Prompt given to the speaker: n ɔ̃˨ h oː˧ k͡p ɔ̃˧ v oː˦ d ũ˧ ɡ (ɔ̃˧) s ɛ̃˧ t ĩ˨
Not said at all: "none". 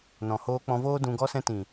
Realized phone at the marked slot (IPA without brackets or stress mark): ɔ˧